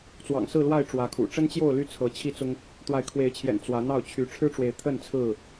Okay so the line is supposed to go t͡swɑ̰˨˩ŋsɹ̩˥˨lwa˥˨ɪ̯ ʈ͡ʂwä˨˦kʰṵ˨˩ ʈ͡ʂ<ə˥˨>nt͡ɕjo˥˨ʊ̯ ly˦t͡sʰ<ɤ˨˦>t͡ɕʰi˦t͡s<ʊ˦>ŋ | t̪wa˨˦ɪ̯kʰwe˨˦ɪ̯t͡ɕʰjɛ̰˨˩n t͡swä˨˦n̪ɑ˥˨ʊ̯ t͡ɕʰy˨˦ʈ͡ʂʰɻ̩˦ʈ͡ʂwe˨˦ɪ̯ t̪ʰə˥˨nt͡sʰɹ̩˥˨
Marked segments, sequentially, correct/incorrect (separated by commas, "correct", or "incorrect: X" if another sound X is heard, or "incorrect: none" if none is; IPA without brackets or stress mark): incorrect: ə˦, correct, correct